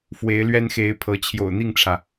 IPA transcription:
f w e˨˦ ɪ̯ l ɥ ɛ˦ n x e˨˦ ɪ̯ pʰ ɤ˨˦ t͡ɕʰ j o̰˨˩ ʊ̯ n̪ i˥˨ ŋ ʈ͡ʂʰ ä˩

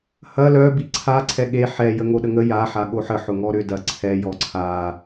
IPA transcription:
h ɐ l œ b i ǀʰ a ǀʰ ɛ ɠ e ħ ɛ j ə ŋ o ɗ ə ŋ ə j a ħ a ɠ o ħ ə ħ ʊ ŋ ɔ ɾ ʏ d ɐ ǀʰ ɛ j ɔ ǀʰ a

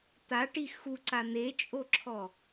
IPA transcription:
t̪ a ʈ i x u ǀ a n̪ e t͡ʃʼ o ǁʰ ɔ

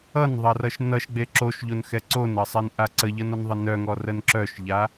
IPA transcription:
ʌ n ðˤ ʌ r ʌ ʃ n ʌ ʃ ɡ͡b e ǁ o ʃ ʎ o n x ɛ ǀ o n ʌ sˤ ɛ n ʔ a ǀ ə ʎ ʌ n ɔ n ðˤ ə n œ ŋ ɔ r ə n ǁ œ ʃ ʎ a

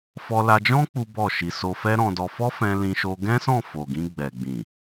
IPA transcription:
f ɔ˧ l a˧ d͡ʒ ɔ̃˦ k͡p u˦ b ɔ˦˨ ʃ i˧ s o˧ f ɛ˦ ɾ ɔ̃˧ d ɔ˧ f ɔ˦ f ɛ̃˧ l ĩ˧ ʃ o˧ ɡ ɛ̃˦ s ɔ̃˦˨ f o˨ ɡ ĩ˧ ɡ͡b ɛ˨ ɡ͡b ĩ˨

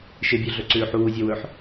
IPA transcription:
ʃ e bʲ o ɮ ɵ ǀ ʉː ħ uː zʲ ɐ w ɵ ħ

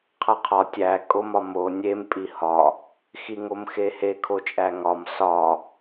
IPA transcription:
qʰ æ qʰ ɒ tʲ æ kʼ o m ɒ m o nʲ e m pʼ i h ɒ | x i ŋ o m x e h e kʰ o t͡ʃʼ æ ŋ ɒ m s ɒ

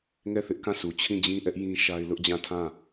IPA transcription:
ŋ ɛ˦˨ θ ɪ˦ ʔ k ã˦˨ s u˨ t͡ɕʰ ĩ˦˨ d͡ʑ ĩ˦ ʔ ɛ˦ ʔ j ĩ˦ ʃ a˦ ɪ̯ l ʊ˦ ʔ d͡ʑ ã˦˨ tʰ ã˦˨

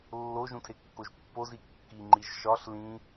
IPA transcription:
lː o ʒ ũ tʰ e kː o ʒ pː o z i kː i ŋ͡ǃ i ʒ ʃ ɒ ɬ l ĩ

